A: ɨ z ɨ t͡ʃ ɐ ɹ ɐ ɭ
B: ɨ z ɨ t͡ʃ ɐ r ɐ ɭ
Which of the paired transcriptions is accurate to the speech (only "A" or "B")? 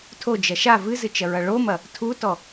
A